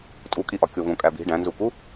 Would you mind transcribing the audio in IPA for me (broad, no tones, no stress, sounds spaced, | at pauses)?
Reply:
tʼ u kʼ i ʔ ɒ kʲ o v õ kʼ æ b i̤ ɖ æ̃ n z u k u